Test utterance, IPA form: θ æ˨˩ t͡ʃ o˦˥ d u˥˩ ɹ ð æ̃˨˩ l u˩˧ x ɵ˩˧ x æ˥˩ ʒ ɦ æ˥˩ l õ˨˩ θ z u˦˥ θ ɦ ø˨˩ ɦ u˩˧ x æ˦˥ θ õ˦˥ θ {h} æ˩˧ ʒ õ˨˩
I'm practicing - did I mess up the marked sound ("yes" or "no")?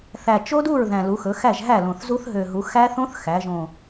yes